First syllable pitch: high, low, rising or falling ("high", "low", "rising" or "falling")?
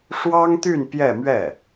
high